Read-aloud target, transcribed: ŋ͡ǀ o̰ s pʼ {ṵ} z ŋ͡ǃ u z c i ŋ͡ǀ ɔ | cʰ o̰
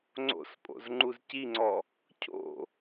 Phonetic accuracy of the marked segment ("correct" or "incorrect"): incorrect